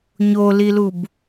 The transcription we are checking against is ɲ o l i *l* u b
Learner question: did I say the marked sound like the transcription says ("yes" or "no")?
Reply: yes